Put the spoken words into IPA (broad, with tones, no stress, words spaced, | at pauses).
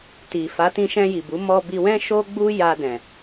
ti˨fa˨˦ tĩ˧ʃɛ̃˧ji˨ bu˨˦ mɔ˧bi˧wɛ̃˦ ʃo˦ɡ͡bu˦ ja˧dɛ̃˨